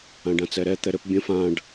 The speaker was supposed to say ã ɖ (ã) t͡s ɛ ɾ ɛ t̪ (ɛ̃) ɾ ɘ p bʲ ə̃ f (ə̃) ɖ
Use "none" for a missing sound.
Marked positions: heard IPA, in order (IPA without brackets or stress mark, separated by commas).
ã, ɛ, ã